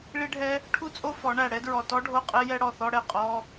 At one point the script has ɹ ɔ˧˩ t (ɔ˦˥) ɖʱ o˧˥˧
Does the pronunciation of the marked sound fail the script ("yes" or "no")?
no